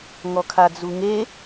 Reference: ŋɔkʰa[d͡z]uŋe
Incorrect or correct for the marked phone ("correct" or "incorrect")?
correct